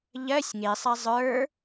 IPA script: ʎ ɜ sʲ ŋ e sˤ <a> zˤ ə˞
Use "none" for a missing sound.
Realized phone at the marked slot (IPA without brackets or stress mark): a